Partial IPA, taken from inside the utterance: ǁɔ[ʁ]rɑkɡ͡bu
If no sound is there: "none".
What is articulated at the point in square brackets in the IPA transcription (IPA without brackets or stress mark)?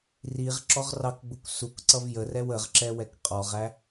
ʁ